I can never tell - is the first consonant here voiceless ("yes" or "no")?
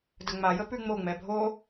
no